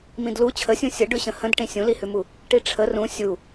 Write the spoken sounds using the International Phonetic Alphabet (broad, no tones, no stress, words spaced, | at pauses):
mĩdlu t͡ɕʰəsʲũ sʲə ɖʉɕə̃hə̃dʈĩ sʲũlihʉmu | ʈiʈ͡ʂʰə rũ sʲu